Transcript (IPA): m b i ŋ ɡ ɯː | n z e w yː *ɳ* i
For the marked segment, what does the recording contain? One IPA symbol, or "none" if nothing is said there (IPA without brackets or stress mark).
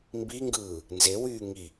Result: ŋ